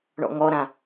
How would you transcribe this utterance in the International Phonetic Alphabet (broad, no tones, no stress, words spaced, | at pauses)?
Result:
ɳɔ̰ŋɔɾã